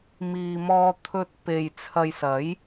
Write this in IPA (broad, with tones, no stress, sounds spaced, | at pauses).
m iː˨ m ɔː˧ t̪ʰ ɵ˧ t̚ p e˨ j t͡sʰ ɐ˨ j s ɐ˨˥ j